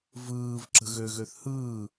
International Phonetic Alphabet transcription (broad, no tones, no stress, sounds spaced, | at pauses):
v ɯː v ǁ ə̤ ɣ ø ɣ ø θ h ɯː